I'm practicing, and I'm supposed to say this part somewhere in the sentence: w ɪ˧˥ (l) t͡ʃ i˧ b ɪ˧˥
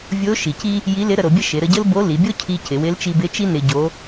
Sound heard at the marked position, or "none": l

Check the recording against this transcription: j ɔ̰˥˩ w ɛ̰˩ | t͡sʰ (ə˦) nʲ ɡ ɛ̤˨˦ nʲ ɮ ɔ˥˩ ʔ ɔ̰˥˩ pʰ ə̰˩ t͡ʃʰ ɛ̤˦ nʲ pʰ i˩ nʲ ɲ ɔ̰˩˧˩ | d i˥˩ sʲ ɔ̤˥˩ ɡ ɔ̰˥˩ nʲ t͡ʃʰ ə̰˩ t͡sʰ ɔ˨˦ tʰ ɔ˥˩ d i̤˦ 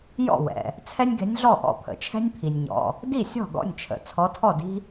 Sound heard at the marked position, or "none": ɛ˦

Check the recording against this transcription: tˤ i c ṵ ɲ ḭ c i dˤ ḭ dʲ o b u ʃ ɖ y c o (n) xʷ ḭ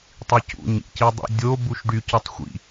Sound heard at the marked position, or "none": tˤ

